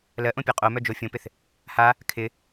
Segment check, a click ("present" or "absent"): absent